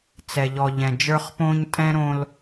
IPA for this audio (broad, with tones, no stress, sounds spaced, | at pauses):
t͡s ɛ˨ ʎ ɔ˨ ʎ ɛ̃˨ d͡ʒ ə˞˦ χ p õː˦ ɲ tʼ ɛ̃˦ ɾ õ˦ l